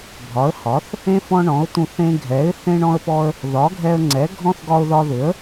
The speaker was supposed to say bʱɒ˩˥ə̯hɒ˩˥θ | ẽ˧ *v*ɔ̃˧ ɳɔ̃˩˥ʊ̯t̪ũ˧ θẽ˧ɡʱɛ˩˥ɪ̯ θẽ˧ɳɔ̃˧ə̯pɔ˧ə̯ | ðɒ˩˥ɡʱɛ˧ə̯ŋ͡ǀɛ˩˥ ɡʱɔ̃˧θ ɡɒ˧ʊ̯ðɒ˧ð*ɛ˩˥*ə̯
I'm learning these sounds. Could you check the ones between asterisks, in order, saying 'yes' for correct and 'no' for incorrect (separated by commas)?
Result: no, no